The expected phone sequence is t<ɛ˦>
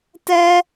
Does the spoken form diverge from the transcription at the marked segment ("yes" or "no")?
no